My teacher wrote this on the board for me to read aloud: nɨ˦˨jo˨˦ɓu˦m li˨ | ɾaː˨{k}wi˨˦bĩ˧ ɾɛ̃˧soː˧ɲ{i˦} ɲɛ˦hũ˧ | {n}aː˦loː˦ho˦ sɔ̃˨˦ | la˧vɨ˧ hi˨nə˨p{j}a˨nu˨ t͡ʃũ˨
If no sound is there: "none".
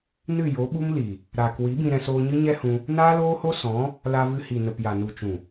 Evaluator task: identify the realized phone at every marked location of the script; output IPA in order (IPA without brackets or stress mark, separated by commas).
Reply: k, ɨ˦, n, j